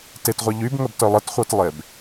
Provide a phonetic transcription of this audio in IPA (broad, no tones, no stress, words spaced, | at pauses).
tetʁʷɛ ʎybŋəbtœ lˠətχʷœtlˠeb